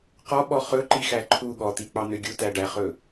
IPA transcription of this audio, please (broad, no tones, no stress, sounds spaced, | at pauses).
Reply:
q ɔ ɓ ɔ χ ɵ ǃ i x æ ǃʰ u ɠ ɔ t̪ i k͡p ɑ n̪ ø ɡʲ u t æ ɖ æ χ ɵ